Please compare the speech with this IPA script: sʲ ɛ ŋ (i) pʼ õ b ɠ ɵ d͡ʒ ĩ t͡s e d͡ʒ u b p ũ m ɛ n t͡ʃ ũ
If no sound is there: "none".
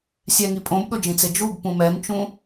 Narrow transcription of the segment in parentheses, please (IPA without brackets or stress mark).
i